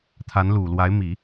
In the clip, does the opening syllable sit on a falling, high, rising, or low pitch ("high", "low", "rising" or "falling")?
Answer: rising